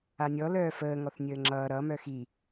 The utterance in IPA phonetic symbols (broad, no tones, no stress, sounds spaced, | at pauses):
a nʲ ɔ l œː f əː ŋ ɔ θ nʲ əː ŋ͡ǁ ʌː ɾ ʌ m œ x i